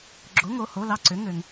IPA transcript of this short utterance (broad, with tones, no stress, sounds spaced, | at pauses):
ɡ͡ǁ o˧˥˧ ŋ o˧˥˧ h o˧˥˧ l ɑ˥˧ ǀ ʏ˧˥˧ ŋ ø˧ ŋ